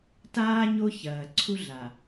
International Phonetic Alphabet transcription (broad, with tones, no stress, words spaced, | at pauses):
taː˦ ɲo˦ çɐː˨ǀʰu˦ɮa˨